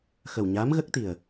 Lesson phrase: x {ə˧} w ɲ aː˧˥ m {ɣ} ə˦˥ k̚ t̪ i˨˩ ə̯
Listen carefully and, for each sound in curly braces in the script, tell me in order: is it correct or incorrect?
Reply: incorrect, correct

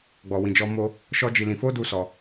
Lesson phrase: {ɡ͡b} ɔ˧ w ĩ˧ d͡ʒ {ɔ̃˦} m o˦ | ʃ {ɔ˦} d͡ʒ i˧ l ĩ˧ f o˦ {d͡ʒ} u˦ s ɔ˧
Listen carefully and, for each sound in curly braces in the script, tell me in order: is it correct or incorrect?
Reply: correct, incorrect, correct, incorrect

